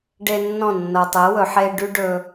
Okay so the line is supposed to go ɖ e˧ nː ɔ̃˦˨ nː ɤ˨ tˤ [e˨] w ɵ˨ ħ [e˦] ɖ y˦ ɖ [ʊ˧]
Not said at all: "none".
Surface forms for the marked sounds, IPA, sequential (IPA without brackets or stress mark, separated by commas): e˨˦, e˧, ɵ˧